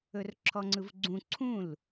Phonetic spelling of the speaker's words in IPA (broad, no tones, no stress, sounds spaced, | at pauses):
ɵ r ǁʰ ɔ ŋ͡ǀ ɯ v ɡ͡ǀ ũ ǀʰ ũ l